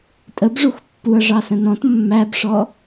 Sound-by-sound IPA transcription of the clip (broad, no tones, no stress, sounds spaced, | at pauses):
tʼ ə b ʐ u x pː u ɐ̯ ʐ ɑ s ə̃ n ɔ̃ t mː æ b ʂ ɔ